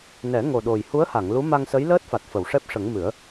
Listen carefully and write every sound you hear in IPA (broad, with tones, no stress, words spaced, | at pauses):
nɛ˨˩˦ ŋo˨˩ɗo˨˩j hu˧˥ə̯ha˨˩˨ŋ lu˧˥ma˧ŋsə˧˥j ləː˦˥t̚fa˨˩t̚fə˨˩˨w ʂɛ˦˥p̚ʂə˨˩˦ŋmɨ˨˩˦ə̯